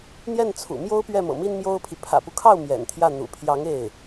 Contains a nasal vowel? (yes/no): no